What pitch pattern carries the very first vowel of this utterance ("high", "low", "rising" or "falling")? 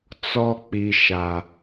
high